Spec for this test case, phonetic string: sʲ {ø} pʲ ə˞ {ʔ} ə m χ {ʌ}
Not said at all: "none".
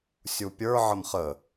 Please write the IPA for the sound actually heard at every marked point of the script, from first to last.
u, ʕ, ə

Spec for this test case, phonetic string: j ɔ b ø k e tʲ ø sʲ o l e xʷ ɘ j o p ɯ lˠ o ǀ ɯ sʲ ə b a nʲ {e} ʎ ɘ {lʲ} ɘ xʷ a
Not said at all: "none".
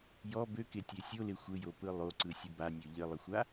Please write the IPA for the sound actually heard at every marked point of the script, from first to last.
ø, lˠ

